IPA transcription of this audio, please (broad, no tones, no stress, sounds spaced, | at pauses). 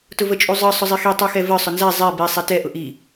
t ʊ v ə t͡ʃʼ u zˤ ə˞ sˤ ʊ zˤ i x i tˤ u x ɛ v ə˞ sˤ ʊ n z æ zˤ ɛ b i sˤ ɛ t ɛ ʔ ʊ ʔ i